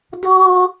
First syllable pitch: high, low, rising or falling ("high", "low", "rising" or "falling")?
high